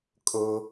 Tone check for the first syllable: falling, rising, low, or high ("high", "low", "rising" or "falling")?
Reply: low